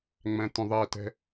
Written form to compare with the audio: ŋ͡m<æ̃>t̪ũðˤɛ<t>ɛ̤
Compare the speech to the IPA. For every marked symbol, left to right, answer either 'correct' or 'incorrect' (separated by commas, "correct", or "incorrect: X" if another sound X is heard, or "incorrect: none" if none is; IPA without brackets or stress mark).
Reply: correct, correct